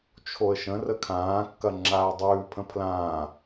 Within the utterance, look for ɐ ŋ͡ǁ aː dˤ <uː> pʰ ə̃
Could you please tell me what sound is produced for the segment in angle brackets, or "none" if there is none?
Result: ʉː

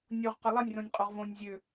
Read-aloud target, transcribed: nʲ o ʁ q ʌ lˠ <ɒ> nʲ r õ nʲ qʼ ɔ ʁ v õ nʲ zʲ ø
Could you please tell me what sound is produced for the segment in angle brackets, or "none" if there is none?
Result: ʌ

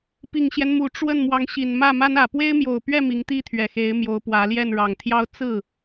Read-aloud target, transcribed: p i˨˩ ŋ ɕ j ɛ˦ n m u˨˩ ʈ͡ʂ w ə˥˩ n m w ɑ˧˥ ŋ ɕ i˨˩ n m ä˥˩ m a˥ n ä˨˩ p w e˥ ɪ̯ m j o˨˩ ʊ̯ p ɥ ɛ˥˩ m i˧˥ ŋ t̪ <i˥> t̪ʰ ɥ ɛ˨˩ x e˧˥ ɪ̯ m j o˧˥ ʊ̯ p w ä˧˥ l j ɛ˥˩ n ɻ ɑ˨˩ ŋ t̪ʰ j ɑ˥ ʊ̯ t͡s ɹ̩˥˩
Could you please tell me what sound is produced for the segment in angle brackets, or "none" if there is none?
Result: i˥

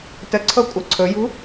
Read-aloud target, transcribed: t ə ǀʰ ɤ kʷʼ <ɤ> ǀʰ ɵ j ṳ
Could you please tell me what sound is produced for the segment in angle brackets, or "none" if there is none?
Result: ɤ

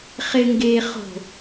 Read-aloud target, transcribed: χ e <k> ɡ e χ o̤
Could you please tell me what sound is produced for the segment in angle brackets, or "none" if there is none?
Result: ŋ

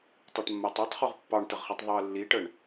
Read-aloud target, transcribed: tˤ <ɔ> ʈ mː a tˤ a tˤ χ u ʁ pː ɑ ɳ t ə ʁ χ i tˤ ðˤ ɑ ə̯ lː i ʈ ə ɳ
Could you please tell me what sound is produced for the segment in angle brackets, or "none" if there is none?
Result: ɑ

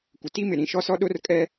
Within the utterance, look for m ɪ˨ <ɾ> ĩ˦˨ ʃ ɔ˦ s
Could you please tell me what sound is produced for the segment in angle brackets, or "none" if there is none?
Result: ɾ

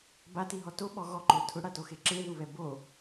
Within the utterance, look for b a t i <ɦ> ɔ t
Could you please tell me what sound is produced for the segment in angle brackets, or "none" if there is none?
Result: ɦ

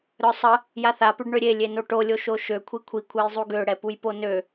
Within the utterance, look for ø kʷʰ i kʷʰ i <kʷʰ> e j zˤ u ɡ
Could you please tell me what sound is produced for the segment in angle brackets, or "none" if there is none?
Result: kʷʰ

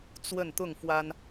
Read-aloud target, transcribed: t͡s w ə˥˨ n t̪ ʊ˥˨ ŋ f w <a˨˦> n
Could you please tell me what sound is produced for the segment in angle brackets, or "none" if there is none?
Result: a˦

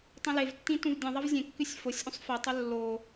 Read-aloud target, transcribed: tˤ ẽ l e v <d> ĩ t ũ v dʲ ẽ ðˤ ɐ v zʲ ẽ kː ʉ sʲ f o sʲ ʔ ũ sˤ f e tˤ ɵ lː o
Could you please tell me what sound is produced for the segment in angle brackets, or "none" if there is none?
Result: tː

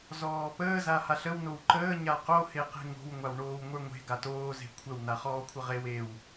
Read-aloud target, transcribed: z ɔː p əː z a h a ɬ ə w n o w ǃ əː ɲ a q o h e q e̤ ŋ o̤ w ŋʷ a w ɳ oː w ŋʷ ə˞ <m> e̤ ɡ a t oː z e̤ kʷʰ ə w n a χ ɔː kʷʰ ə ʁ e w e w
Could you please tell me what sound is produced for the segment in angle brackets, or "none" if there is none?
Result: ŋʷ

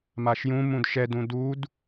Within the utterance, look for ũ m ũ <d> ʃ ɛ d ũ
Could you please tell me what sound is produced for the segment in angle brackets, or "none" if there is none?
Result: d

